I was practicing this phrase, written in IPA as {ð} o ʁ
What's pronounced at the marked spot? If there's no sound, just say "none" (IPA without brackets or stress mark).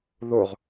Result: ð